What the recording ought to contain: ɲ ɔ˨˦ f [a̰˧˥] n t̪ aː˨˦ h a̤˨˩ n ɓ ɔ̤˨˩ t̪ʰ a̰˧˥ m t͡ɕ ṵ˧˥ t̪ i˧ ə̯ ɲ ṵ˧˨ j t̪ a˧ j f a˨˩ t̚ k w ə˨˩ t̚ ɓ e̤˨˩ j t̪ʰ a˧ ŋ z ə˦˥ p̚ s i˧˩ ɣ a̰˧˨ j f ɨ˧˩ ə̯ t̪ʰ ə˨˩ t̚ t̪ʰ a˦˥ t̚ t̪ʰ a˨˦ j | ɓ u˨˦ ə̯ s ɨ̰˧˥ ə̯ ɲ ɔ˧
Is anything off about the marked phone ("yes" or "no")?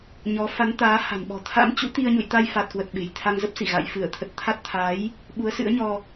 yes